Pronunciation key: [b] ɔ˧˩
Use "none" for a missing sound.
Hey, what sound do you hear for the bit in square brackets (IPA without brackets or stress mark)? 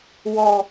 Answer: w